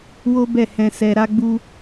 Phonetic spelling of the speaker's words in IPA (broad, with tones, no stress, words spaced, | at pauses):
wo˦bɛ˦˨ hɛ̃˧sɛ˧ ɾa˧ɡ͡bu˧